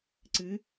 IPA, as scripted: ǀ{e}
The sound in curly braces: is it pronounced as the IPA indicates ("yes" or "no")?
no